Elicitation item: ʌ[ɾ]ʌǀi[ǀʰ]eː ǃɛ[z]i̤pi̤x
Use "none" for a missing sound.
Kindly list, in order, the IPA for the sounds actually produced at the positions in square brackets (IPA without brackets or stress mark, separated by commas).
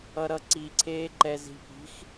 ɾ, ǀʰ, z